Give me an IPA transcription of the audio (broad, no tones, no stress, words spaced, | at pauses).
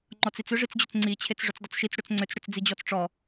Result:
ŋ͡ǃɔt͡sit͡sʏ ʐit͡sd͡ʑʏt͡sŋ͡ǀi t͡ɕʰet͡sʐʏt͡sdˤʏt͡sʃit͡s ɽʏt͡sŋ͡ǀʏt͡s ɽʏt͡sd͡zid͡ʑɔt͡sʈ͡ʂɔ